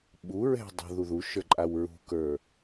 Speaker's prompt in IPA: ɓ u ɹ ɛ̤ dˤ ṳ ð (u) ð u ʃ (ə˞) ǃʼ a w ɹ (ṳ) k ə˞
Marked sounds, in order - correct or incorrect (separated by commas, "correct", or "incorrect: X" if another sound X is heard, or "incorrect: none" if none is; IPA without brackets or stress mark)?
correct, correct, correct